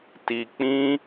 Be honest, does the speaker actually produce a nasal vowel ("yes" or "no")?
yes